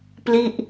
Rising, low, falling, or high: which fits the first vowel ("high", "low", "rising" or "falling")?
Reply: falling